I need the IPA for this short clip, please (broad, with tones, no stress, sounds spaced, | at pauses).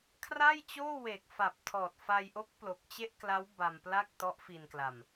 kʰ r a˥˩ j t͡ɕ oː˥˩ w e˨˩ k̚ f a˨˩ p̚ tʰ ɔː˨˩ t̚ f a˧ j ʔ o˦˥ k̚ p l o˨˩ k̚ t͡ɕ e˥˩ ʔ k l a˦˥ w b a˧ m p l a˥˩ k̚ t ɔ˦˥ ʔ f i˧ n k l a˧ m